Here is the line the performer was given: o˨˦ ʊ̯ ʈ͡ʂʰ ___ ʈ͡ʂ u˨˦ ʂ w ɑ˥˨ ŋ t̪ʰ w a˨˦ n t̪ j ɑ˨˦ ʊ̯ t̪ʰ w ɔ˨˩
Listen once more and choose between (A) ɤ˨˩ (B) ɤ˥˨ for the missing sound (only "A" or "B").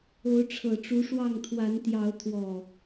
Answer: A